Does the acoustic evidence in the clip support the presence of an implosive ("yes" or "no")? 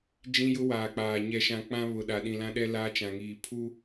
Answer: yes